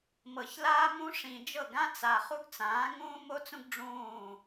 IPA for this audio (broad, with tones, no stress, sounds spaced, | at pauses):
m ɤ˨ ç l aː˦ m ũ˦ ʂ ĩ˨ d͡ʒ ɤ˦˨ ɡ ã˦ t͡s a˨ χ u˦ ɡ t͡s ãː˨˦ ŋ ũː˦ m o˦ t͡s ũ˦ ɡ ɖ͡ʐ ũː˦˨